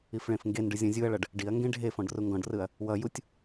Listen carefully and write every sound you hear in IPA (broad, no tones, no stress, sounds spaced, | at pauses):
i f ɭ ẽ f ŋ ɡ e n ɖ ɯ zʲ ɔ̃ zʲ u ɐ̯ ɭ ʌ ɖ | ɖ i ɐ̯ ŋ ɡ ẽ ɖʱ e f ɔ̃ ɖ r u ŋ ɡ ɔ̃ ɖ r ɯ ɐ̯ | w ʌ j u tʲ